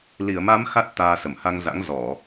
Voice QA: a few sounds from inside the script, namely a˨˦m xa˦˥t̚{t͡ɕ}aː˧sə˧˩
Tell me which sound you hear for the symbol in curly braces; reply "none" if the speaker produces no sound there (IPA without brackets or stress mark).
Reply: t̪